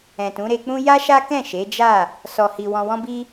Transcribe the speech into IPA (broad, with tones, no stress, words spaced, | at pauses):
ɛ̃˨tũ˨˦ɾe˧k͡pũ˦ ja˦ʃa˦kɛ̃˦˨ ʃe˨˦d͡ʒa˦˨ | sɔ˨hi˨ wɔ̃˨wɔ̃˧bi˧